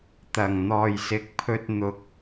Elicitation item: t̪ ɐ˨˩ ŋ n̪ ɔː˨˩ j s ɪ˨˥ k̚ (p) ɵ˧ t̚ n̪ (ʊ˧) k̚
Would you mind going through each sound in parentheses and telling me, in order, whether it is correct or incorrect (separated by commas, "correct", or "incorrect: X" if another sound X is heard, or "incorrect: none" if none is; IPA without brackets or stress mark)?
incorrect: pʰ, incorrect: ʊ˨˥